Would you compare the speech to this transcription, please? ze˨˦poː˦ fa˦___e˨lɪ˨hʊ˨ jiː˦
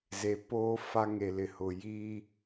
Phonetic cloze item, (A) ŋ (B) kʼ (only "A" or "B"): A